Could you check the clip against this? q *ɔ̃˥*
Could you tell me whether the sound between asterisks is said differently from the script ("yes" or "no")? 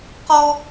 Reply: yes